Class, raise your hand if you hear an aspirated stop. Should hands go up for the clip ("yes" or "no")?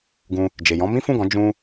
no